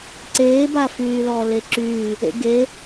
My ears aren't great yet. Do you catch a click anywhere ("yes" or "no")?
yes